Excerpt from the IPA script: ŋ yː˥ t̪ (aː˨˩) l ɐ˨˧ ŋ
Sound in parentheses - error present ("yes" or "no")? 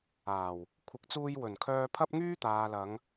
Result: yes